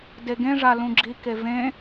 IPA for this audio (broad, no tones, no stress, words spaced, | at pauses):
deɡẽ ʐalũɡ͡ǁi kevẽ